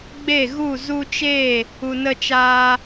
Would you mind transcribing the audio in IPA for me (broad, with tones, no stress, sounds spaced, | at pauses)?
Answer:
ɡ͡b e˦˨ ɣ u˦˨ z u˧ t͡ʃ eː˦˨ | u˨ n ə˧ t͡ʃ aː˧